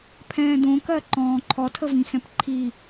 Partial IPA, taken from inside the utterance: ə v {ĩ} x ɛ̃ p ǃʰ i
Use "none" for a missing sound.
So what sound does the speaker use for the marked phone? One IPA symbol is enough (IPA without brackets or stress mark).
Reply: ĩ